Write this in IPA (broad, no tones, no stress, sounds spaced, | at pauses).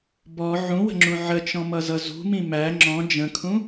b ɔ ʕ ũ w ə̤ ŋ͡ǁ ũ ʕ ə t͡ʃ ɔ̃ m ʌ z ʌ z ṳ m ĩ m æ ŋ͡ǁ ɔ̃ d͡ʒ ə̃ kʰ ũ